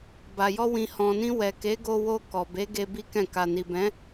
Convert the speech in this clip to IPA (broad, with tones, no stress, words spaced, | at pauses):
ba˨jɔ˧ wĩ˨hɔ̃˨nĩ˧ wɛ˨ ke˨˦ɡo˧wo˧ kɔ˨be˨˦ɡe˧ bi˦kɛ̃˦˨ka˧ ni˨bɛ̃˨˦